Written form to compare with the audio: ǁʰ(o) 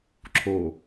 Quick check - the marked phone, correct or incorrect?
correct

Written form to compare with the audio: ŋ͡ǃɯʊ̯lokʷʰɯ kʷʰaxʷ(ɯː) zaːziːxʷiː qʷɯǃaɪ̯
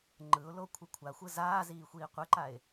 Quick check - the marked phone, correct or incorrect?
incorrect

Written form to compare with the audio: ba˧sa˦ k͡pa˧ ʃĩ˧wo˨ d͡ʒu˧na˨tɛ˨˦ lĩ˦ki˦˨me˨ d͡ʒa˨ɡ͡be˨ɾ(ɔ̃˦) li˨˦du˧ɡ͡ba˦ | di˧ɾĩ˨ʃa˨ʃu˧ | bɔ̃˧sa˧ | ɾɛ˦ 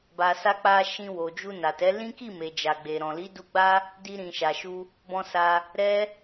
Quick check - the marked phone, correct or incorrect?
incorrect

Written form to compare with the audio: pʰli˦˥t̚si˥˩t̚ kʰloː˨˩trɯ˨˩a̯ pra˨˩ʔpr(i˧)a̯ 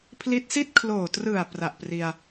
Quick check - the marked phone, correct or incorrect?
correct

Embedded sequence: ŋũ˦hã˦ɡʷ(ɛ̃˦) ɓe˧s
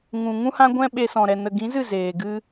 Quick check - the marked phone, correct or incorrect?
correct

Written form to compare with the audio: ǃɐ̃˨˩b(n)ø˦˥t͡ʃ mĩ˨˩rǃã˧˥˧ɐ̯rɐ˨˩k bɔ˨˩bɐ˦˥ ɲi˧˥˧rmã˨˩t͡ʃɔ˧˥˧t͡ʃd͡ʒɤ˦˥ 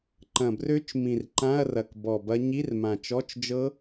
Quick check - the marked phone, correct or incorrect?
incorrect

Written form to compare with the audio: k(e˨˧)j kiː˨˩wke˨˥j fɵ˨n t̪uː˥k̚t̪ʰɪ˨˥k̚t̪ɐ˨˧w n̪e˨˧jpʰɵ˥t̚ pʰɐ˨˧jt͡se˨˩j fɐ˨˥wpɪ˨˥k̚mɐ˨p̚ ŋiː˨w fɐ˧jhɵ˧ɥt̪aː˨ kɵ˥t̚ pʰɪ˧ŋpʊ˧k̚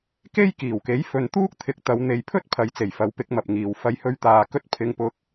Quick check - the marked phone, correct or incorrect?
incorrect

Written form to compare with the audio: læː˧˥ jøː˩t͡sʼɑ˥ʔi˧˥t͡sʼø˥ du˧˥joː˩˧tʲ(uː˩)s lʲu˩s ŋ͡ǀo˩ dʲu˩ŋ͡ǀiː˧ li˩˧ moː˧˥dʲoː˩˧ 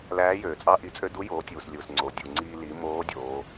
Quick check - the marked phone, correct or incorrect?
correct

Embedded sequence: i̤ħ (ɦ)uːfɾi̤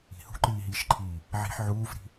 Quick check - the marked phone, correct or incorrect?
incorrect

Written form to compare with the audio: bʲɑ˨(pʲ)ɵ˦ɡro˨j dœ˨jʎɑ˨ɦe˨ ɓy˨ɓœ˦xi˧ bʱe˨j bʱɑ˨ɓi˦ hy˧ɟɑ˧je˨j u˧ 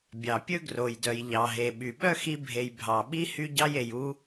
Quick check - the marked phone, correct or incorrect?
correct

